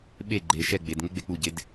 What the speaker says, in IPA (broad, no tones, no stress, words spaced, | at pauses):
ɓe ɡ͡ǃe ʃɛ ɡ͡bed ŋeɡ͡bek͡puɟed